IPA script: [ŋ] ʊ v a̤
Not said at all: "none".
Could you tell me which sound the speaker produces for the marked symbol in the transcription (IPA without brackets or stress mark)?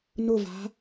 n